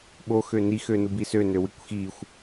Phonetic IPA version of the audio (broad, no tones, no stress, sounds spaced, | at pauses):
ɓ o x ø n i x ø n u b i s ø n ø w i kʷ x i xʷ